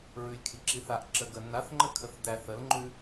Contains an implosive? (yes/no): no